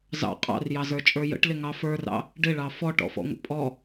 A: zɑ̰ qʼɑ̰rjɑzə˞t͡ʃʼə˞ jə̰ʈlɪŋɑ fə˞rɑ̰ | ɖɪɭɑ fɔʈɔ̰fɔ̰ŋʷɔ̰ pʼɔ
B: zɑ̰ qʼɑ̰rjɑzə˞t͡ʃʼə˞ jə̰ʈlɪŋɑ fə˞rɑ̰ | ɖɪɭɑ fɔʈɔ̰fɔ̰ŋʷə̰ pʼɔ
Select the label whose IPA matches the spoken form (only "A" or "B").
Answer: B